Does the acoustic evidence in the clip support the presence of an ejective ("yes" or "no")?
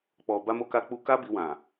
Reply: no